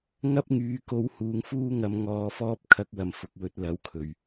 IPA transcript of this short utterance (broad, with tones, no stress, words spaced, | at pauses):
ŋɐ˥p̚ŋyː˨˧ko˧w huː˨˧ŋfuː˥ŋɐ˧m ŋɔː˧fɔː˥p̚ kʰɐ˧k̚wɐ˨˩m fʊ˨k̚wɵ˧t̚lɐ˨˥wkʰɵ˨˩ɥ